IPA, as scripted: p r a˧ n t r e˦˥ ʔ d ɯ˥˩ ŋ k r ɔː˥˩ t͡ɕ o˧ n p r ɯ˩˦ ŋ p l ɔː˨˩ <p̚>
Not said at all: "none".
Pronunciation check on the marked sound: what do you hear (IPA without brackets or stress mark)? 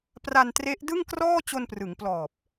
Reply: p̚